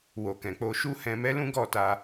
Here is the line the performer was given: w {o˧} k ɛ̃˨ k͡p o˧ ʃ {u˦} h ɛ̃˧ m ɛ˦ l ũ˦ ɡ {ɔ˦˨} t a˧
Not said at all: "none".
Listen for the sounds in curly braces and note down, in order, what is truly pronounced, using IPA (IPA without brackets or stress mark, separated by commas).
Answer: o˨, u˦, ɔ˦˨